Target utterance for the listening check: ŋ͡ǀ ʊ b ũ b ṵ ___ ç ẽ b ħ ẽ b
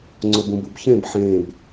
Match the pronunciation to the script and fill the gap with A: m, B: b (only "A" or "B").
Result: B